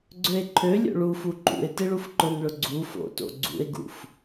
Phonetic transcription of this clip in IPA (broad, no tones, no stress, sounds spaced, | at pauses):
ɡ͡ǀ ø e̯ ǃʰ ø lʲ o̰ ɭ u f u ǃ ṵ e̯ t ɪ ɭ u f ǃ ʊ n ɭ ʊ ɡ͡ǀ u f o̰ t o̰ ɡ͡ǀ ṵ e̯ ɡ ṵ f